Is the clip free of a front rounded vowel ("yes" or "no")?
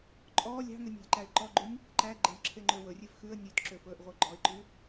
no